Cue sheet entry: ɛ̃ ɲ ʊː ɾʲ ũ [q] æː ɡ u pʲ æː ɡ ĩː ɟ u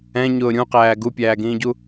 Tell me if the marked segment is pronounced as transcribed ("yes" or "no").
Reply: yes